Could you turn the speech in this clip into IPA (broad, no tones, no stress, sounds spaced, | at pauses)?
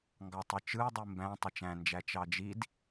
ŋ ɡ ɑ tˤ ɯ t͡ʃ ɯ ɐ̯ dˤ i m b æ̃ tˤ e t͡ʃ æ̃ n d͡ʒ æ t͡ʃ ɑ d͡ʒ i d